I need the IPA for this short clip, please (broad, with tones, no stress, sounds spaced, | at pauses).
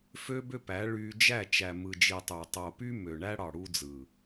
f ø˦ b ø˦ p æ˨˦ ɭ y˧ d͡ʒ æ˦˨ t͡ʃ æ˨ m ɯ˨ d͡ʒ i˨ tˤ y˨ tˤ o˨ p y˧ m ø˨ ɳ æ˦ ɽ ɑ˨ ɽ u˧ d͡z ɯ˨